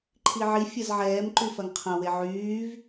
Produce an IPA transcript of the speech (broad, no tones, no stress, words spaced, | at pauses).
ǃʰiʕi fʲɐzʕɛːm ǃyfɐŋqʰɐ̃ weʕyːv